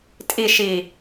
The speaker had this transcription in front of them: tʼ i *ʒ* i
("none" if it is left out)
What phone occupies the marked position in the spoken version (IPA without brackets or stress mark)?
ʃ